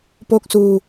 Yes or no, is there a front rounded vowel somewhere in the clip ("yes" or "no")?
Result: no